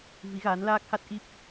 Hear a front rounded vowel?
no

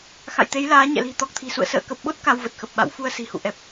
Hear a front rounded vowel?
no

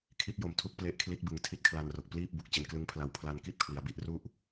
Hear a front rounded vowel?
no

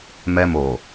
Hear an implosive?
no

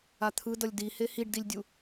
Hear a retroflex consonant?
yes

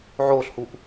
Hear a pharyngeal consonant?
yes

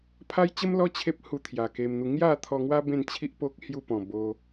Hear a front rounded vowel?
no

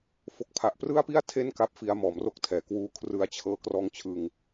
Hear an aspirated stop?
yes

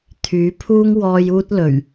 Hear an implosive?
no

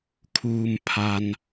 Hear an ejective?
no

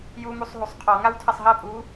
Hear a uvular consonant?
yes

